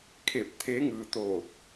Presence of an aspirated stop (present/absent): present